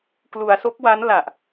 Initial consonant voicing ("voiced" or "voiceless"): voiceless